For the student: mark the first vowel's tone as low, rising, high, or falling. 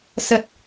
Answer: low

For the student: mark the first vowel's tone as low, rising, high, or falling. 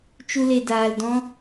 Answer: high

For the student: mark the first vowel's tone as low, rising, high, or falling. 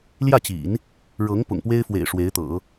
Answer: falling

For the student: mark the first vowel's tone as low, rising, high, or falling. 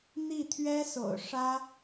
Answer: falling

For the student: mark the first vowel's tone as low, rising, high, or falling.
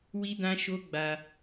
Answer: high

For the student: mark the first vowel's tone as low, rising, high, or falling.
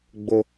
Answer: high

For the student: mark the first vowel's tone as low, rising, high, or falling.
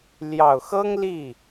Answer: low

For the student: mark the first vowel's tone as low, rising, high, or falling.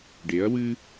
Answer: rising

